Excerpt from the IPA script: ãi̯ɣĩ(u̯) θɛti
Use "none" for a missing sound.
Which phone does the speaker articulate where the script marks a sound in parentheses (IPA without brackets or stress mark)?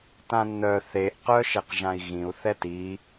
u̯